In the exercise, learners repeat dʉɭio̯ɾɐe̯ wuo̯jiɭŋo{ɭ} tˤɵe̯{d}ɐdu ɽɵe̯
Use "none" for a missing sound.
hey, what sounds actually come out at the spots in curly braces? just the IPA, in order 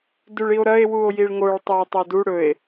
ɭ, tˤ

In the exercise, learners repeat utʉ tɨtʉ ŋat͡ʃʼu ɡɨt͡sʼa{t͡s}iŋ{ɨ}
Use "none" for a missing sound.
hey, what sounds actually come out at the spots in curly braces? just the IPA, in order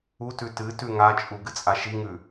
ʃ, ʉ

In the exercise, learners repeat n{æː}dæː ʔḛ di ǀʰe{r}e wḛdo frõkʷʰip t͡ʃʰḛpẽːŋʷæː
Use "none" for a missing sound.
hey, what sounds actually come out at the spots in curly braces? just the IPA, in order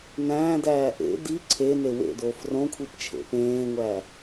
æ̃ː, n

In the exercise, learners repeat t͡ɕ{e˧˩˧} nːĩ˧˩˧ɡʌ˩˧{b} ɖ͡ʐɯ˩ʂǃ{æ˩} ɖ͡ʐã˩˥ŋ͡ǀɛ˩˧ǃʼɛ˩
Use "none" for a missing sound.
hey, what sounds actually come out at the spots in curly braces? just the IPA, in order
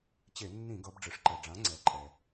e˧˩˧, b, ɛ˩

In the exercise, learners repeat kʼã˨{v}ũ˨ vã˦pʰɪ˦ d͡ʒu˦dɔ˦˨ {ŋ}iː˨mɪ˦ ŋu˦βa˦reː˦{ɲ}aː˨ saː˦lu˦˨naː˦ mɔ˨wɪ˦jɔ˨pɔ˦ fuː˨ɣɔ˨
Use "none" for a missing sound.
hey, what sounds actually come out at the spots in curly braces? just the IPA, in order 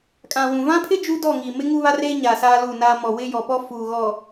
w, ŋ, ɲ

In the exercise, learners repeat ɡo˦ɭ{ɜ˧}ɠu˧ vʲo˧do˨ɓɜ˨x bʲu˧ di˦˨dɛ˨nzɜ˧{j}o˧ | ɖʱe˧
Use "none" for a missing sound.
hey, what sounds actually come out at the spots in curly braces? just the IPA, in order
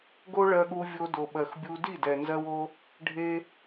ɜ˧, w

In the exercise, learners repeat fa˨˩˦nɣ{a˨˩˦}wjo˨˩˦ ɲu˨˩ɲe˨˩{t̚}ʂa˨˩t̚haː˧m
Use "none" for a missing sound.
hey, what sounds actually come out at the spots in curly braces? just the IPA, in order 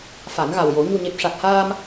a˨˩, p̚

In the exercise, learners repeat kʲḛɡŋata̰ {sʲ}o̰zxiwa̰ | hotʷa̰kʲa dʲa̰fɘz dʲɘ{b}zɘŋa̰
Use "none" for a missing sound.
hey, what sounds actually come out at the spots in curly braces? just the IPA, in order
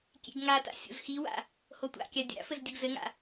sʲ, ɡ

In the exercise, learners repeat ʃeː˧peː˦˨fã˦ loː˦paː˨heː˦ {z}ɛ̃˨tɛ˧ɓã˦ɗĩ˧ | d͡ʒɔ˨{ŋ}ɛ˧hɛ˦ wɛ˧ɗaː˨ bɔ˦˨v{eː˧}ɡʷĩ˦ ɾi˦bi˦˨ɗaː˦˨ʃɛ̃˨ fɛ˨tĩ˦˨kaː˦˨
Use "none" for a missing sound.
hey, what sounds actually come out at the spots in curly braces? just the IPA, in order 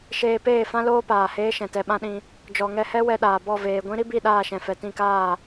ʃ, ŋ, eː˨

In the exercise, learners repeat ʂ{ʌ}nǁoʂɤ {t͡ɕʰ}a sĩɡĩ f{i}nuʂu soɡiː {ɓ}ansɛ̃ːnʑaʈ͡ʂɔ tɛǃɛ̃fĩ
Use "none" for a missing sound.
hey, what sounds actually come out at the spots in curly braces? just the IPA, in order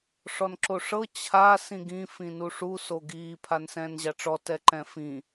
ɔ, t͡ɕʰ, ĩ, pʰ

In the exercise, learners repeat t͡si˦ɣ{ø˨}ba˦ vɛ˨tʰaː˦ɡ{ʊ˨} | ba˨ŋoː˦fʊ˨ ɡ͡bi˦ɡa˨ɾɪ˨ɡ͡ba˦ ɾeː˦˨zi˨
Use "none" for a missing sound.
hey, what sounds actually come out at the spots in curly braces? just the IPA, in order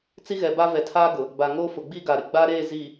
ɛ˨, ʊ˨

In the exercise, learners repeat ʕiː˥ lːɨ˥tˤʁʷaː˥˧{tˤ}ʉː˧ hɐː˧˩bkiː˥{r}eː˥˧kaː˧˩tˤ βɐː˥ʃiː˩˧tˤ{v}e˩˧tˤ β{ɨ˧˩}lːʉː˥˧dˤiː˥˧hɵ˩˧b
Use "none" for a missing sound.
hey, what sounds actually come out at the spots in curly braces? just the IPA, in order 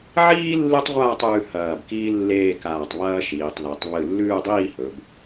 tˤ, lː, ð, ɨ˧˩

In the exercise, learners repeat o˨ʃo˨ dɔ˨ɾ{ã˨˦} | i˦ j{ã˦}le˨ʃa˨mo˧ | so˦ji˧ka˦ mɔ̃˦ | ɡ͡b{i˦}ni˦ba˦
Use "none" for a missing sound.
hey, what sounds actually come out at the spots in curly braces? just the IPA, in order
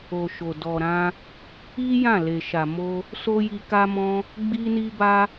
ã˧, ã˦˨, i˦

